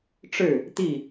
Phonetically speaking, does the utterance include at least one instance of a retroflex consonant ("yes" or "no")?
yes